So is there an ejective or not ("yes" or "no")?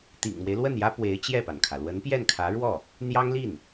no